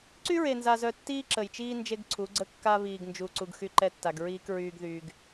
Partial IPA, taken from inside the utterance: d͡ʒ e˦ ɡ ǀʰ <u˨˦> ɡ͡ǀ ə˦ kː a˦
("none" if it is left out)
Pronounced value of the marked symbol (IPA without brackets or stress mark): u˨˦